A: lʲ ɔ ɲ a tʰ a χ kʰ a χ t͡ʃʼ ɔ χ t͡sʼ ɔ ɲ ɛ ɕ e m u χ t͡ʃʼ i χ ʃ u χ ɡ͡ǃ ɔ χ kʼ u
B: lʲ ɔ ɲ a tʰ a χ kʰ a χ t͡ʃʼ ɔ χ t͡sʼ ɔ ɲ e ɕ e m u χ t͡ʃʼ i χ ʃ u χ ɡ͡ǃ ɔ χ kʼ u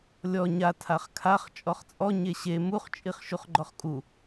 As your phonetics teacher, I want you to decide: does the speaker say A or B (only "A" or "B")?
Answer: B